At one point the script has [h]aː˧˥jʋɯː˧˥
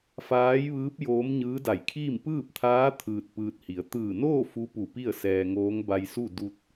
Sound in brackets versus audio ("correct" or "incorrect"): incorrect